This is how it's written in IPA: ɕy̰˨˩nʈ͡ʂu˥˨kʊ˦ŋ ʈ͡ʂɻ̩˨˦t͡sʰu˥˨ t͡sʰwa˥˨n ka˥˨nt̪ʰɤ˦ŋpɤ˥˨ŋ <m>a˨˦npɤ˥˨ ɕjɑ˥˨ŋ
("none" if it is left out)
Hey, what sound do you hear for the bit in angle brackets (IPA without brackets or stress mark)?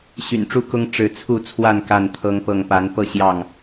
p